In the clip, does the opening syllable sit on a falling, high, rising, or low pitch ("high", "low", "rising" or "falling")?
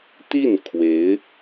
falling